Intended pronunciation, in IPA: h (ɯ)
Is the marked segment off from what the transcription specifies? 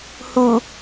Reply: yes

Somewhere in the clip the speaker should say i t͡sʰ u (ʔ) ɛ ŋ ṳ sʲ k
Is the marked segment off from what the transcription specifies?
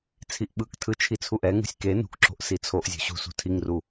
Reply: no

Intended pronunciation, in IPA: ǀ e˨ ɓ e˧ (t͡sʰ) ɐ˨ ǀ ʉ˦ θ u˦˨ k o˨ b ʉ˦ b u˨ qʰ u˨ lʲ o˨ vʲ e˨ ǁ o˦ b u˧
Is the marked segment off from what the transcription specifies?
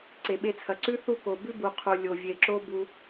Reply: no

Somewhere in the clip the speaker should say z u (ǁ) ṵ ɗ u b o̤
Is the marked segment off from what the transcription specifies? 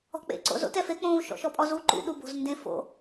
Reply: yes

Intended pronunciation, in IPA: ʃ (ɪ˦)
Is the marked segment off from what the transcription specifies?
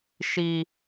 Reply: yes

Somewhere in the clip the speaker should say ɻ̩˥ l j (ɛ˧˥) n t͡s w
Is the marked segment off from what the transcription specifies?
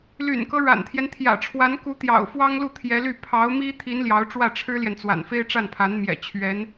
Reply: yes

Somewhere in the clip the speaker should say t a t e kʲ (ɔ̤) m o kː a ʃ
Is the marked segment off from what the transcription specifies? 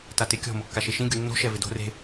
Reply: no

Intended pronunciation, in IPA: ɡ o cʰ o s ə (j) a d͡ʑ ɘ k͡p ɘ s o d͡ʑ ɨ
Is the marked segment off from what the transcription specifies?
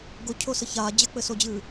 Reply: yes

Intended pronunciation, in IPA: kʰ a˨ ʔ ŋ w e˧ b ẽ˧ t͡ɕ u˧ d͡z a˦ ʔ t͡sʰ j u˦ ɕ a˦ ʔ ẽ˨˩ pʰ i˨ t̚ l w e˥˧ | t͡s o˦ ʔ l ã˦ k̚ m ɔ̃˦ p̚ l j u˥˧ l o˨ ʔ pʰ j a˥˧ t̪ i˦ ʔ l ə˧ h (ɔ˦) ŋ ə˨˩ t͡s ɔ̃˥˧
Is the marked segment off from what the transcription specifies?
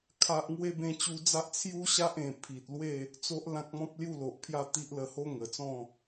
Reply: yes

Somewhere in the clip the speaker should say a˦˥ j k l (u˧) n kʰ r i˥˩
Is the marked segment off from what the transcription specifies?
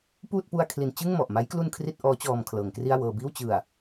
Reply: no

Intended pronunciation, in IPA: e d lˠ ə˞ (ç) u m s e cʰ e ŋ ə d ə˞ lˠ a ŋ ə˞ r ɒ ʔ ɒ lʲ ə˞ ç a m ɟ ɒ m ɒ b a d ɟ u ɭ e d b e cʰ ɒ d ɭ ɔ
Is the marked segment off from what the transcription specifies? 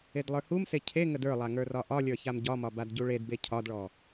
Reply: yes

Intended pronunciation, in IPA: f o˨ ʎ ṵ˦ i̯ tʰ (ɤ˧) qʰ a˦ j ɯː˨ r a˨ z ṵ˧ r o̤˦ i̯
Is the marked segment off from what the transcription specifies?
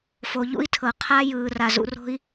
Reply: yes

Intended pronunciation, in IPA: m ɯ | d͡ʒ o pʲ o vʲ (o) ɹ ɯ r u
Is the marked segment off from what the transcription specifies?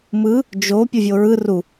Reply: no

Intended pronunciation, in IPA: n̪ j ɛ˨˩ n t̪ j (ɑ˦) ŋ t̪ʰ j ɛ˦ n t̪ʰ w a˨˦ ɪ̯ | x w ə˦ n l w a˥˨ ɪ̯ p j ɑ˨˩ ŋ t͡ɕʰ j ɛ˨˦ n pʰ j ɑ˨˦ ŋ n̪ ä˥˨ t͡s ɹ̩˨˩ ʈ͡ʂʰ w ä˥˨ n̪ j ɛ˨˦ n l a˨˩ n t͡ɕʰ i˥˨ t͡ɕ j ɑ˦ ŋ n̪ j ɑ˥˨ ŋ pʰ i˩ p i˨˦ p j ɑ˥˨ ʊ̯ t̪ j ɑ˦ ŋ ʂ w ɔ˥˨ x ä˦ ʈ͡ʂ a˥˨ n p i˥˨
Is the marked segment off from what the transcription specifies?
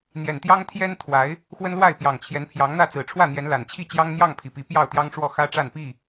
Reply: no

